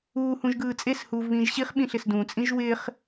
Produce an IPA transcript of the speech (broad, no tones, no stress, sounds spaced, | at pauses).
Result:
uː h ũ ʒ ɡ ɯː t͡sʼ e s h uː v β ĩː ʒ ɕ i χ ɓ ĩ ɬ ɪ s d ũ t͡sʼ ĩ ʒ w ɪː χ